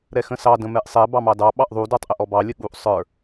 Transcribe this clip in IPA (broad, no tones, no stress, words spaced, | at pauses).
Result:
ɾɛxə̃sɑ də̃mɛʔsˤɛ bɑmɑdɑ ɓɑʔðˤu də˞tˤʔəʔɔbɑ lʲəɠuʔ sˤə˞